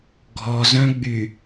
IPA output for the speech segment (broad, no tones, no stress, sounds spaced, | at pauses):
ɡʱ ɔ z œ̃ ɡ͡b y